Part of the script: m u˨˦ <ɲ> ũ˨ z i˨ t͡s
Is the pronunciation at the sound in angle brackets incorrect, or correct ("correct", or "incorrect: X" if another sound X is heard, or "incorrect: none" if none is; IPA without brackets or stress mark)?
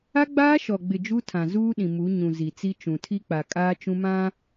correct